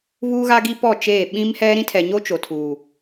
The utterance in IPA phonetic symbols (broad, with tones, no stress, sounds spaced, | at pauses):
β uː˦ ɣ a˦ ɡ i˦ p ɔ˦˨ t͡ʃ eː˦˨ ɓ ĩ˦ m h ɛ˦ ɾ ĩ˦ tʰ ɛ˨ ɲ o˦ t͡ʃ o˨ tʰ uː˨